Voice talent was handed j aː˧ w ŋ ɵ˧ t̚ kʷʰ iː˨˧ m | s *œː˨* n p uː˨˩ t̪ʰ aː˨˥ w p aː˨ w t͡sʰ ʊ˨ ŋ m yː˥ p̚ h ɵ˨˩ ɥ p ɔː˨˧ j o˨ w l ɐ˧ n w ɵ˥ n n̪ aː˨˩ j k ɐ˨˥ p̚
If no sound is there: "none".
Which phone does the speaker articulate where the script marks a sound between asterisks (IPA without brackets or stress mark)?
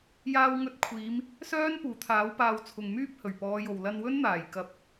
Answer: œː˥